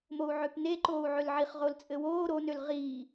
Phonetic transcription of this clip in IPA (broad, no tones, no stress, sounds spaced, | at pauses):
m o u̯ ʕ ø p n e ǃ oː u̯ ʕ ø l ʕ i χ ʁ o l t͡sʼ ɘ w oː ɾ o n ø l ʁ iː